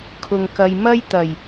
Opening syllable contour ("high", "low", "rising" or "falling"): low